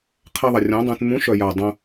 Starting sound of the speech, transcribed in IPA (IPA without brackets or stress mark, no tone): qʰ